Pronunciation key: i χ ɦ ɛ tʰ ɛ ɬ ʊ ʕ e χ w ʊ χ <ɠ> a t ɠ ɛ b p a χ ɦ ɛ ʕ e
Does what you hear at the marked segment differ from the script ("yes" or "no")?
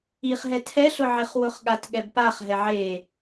no